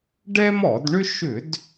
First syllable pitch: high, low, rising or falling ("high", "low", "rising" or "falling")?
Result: high